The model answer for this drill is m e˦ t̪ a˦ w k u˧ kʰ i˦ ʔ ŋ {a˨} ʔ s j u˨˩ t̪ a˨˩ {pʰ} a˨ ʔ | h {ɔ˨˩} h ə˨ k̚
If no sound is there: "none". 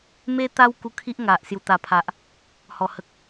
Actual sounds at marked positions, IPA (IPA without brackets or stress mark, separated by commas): a˨, pʰ, ɔ˨˩